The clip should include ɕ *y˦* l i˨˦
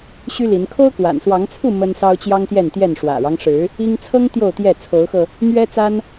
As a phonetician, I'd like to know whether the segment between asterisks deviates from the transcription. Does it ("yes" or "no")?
no